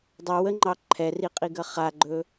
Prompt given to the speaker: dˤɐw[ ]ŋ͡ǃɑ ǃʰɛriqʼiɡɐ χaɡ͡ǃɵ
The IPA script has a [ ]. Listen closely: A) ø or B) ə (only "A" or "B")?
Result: B